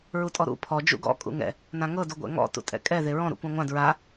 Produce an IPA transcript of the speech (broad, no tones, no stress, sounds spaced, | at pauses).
ɹ u tʼ ɔ ɾ ṵ pʰ ɔ d͡ʒ ṵ ɡ ɔ̰ kʼ ṵ ŋ ɛ̰ | n ã ŋ ɤ d u ɡʷ ɛ̰ ŋ ɔ̰ t ṵ tʼ ɛ̰ kʼ ɛ ð e ɹ ɔ̃ ɾ ṵ kʷ ã ŋʷ ã d ɹ a